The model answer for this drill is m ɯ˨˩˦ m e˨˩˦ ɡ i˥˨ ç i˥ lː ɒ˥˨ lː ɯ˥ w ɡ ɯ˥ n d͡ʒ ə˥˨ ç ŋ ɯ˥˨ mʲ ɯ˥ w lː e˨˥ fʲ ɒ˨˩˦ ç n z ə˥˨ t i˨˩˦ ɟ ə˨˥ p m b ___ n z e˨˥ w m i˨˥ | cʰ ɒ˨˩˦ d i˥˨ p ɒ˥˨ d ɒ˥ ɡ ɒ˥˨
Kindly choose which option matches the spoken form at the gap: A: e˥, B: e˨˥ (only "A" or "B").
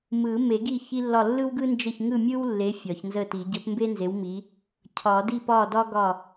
A